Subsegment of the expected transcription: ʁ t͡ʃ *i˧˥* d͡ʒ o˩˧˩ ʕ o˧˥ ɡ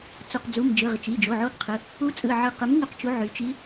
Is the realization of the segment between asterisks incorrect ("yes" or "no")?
yes